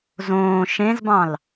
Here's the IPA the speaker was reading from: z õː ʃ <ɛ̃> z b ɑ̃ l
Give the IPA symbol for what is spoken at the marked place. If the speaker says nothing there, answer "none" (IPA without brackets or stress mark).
ẽ